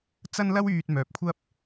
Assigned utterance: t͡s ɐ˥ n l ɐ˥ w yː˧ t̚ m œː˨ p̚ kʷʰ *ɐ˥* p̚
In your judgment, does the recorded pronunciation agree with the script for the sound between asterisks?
yes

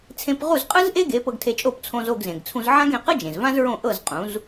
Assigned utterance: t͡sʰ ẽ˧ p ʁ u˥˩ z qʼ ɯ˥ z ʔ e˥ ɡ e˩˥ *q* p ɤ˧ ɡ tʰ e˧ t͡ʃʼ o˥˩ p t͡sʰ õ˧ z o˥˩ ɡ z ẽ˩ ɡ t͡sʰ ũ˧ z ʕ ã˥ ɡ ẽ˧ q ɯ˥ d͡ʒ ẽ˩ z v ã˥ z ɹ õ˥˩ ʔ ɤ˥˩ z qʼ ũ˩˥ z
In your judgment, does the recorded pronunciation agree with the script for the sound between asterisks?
no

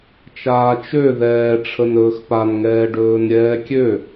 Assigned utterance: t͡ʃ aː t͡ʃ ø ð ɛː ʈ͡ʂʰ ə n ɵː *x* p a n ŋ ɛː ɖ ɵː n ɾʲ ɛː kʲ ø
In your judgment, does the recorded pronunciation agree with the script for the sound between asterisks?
yes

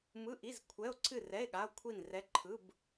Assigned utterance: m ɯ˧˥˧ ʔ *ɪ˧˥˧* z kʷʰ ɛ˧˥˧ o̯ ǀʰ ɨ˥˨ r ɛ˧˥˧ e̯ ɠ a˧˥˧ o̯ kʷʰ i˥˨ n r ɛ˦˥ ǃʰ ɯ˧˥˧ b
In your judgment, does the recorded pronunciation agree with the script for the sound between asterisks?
no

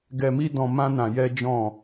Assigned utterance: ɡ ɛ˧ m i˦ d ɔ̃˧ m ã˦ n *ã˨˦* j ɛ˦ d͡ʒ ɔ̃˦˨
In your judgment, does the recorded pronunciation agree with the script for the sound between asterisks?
no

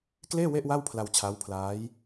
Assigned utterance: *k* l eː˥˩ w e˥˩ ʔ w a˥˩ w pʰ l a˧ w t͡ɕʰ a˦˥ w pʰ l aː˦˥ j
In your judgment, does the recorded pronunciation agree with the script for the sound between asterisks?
yes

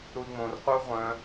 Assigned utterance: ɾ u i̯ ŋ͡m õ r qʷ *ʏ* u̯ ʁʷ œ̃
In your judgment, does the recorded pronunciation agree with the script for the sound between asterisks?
no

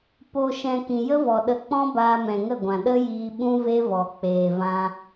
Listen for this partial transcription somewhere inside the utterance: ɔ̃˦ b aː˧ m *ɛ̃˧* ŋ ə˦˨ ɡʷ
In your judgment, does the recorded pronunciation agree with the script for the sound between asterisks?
no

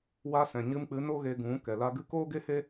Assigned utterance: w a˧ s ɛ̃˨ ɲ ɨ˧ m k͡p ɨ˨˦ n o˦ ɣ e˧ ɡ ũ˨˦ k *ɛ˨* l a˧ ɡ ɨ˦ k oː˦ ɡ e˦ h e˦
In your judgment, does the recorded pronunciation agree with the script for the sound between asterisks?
yes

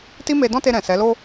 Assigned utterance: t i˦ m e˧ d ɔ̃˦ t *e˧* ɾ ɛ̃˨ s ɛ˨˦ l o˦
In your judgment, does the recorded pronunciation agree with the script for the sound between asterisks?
yes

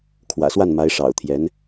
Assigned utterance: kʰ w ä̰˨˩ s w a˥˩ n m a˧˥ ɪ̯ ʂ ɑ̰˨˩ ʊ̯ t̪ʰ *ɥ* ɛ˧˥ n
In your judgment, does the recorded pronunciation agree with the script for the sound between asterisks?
no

